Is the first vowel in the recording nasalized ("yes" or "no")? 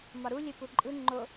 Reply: no